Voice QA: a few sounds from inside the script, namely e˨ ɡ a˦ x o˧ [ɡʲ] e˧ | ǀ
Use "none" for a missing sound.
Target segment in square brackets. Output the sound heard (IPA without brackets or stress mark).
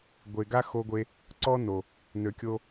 ɡʷ